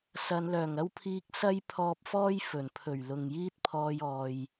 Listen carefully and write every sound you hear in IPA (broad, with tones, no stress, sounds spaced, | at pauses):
s ɐ˨˧ n l œː˨˩ ŋ ɐ˥ w pʰ iː˧ k̚ s ɐ˥ j pʰ ɔː˧ p̚ f ɔː˥ j f ɵ˨˩ n pʰ ɵ˨˩ ɥ l ʊ˨ ŋ j iː˥ t̚ pʰ ɔː˧ j ɔː˨ j